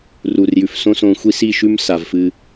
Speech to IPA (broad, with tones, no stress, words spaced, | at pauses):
ruː˨rjʉ˨f sõ˦sõː˧xʷi˦ si˦˨ʃʉ˦m sa˨vfɨ˧